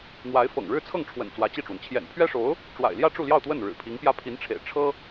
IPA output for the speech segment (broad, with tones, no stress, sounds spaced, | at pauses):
n̪ w a˧˥ ɪ̯ f ɤ̰˨˩ ŋ ɻ ɻ̩˥˧ t͡sʰ ɤ˥˩ ŋ ʈ͡ʂʰ w ə̰˨˩ n t͡s w ä˧˥ t͡ɕ i˥˩ ʈ͡ʂ w ə˩ n t͡ɕʰ j ɛ̰˨˩ n pʰ ɥ ɛ˥ ʂ o˧˥ ʊ̯ | ʈ͡ʂ w a̰˨˩ ɪ̯ l j ä˥˧ ʈ͡ʂ u˥˧ l j ɑ˥˧ ʊ̯ t̪ w ə˥˩ n ɻ ɻ̩˨˩ pʰ i˧˥ ŋ p j ä˥ pʰ i˧˥ n ʈ͡ʂʰ ḛ˨˩ ɪ̯ ʈ͡ʂʰ ɤ˥